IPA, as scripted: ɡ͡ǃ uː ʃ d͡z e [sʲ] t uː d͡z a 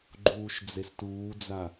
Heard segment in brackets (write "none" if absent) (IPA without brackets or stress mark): s